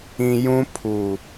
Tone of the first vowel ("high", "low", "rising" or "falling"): low